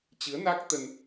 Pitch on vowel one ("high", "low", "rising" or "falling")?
rising